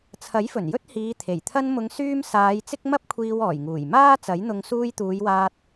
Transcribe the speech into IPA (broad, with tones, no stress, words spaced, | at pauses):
t͡sʰɐ˨˥jfɵ˨˩n jɵ˥t̚hiː˨˧t̪ʰe˨˩j t̪ʰɐ˧nmʊ˨˧ŋsyː˧m saː˨˧j t͡sɪ˥k̚mɐ˥p̚kʷʰiː˧w ɔː˨˩jŋuː˨˩j maː˥t͡sɐ˨˥jn̪ʊ˧ŋ suː˧jt̪uː˨˧jwaː˧t̚